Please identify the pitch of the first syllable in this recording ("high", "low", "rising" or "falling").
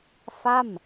falling